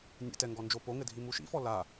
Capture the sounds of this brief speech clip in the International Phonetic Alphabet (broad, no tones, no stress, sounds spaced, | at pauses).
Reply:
nʲ ɛ̰ t ɛ ŋ ɡ ɔ n d͡ʒ o p o ŋ ɘ dʱ i m u ʃ ḭ f ɔ l a